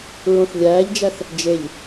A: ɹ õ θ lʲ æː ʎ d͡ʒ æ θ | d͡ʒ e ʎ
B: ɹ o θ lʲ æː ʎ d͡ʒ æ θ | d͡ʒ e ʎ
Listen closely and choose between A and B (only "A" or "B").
A